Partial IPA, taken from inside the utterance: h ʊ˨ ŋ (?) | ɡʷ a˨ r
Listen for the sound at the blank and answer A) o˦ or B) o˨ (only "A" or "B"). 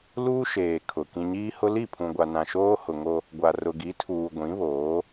A